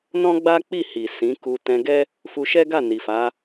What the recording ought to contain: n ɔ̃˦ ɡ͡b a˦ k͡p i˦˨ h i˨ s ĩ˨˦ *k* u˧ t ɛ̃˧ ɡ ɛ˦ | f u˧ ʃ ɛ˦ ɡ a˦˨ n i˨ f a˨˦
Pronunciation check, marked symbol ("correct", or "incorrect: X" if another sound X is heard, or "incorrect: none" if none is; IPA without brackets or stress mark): correct